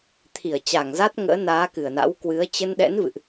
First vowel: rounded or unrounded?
unrounded